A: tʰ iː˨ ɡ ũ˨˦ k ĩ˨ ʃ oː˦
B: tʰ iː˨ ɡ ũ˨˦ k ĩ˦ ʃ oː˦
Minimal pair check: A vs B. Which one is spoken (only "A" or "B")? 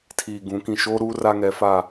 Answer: A